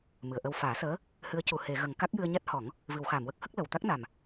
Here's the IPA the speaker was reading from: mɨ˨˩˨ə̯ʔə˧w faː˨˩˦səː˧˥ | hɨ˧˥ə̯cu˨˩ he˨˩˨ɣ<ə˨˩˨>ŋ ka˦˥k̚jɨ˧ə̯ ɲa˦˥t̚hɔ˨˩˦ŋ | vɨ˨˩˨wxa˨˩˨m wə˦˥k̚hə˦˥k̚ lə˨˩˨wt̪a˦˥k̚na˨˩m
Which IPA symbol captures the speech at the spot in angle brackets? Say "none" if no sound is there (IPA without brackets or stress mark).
ə˨˩˨